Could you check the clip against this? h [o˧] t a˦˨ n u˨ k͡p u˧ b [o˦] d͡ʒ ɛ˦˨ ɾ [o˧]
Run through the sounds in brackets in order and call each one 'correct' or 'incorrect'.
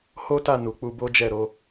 incorrect, correct, incorrect

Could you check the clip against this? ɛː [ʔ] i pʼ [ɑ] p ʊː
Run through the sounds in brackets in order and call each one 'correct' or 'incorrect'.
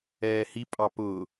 incorrect, correct

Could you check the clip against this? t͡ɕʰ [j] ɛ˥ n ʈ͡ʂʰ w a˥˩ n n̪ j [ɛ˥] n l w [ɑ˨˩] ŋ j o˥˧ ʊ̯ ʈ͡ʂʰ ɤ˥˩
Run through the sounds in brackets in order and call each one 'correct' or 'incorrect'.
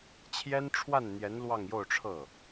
correct, incorrect, incorrect

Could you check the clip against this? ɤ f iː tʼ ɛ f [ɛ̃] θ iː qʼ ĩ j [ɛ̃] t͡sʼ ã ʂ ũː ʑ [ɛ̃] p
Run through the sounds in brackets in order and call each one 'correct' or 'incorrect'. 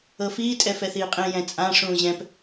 incorrect, correct, correct

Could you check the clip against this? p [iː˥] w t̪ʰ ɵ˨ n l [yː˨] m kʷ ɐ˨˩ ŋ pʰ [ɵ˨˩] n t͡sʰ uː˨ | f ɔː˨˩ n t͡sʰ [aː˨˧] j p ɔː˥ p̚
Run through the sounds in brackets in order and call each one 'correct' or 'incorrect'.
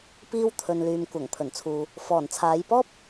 incorrect, correct, correct, correct

